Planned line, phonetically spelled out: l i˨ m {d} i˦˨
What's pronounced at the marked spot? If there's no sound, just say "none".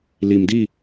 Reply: d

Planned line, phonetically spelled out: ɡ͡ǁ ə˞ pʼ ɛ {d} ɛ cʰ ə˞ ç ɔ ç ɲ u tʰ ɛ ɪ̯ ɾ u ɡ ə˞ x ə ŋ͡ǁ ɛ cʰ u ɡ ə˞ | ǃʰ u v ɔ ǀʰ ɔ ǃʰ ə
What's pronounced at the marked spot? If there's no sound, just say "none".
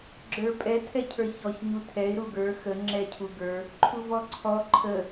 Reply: tʰ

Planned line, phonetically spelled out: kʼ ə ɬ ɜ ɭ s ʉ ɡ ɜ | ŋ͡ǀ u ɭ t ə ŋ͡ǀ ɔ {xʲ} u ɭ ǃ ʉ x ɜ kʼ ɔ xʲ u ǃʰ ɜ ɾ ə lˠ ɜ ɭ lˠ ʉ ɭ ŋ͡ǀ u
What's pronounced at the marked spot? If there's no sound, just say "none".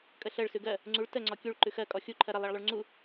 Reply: kʲ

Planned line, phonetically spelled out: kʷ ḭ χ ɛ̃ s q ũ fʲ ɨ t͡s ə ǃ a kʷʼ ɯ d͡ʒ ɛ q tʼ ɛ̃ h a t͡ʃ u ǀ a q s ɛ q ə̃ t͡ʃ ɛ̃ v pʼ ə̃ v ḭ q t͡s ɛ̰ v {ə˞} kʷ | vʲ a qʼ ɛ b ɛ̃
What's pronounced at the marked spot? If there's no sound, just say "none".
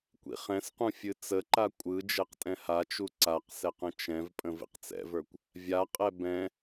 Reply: ə˞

